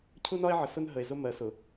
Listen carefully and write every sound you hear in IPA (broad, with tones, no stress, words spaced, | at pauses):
cʰu˦nɒ˦e̯ʕə˨ sʊ˦n ɦə˨e̯zʊ˦ mɜ˨˦sʊ˨